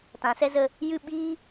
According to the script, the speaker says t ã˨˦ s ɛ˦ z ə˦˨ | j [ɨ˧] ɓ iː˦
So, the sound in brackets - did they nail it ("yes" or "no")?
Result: no